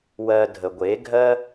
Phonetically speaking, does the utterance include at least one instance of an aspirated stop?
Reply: no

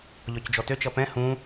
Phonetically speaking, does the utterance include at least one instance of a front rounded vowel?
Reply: yes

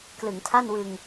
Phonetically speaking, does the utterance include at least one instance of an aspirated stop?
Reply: yes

